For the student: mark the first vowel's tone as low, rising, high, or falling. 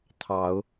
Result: rising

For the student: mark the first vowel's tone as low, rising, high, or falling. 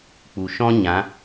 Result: low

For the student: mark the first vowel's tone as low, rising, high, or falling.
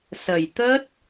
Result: low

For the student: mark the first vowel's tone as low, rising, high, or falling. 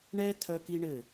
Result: high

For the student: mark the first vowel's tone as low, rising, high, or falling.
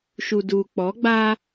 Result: low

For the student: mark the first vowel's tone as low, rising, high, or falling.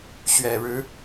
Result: low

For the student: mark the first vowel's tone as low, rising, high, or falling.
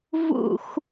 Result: falling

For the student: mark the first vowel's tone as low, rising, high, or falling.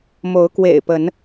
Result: rising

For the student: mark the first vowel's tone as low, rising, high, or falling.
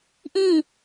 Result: falling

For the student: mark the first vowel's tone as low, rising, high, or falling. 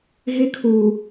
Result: high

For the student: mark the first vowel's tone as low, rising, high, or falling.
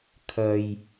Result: low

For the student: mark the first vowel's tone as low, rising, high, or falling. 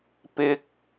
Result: high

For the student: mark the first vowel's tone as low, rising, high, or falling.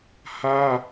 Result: high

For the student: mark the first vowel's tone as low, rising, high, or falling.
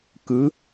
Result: rising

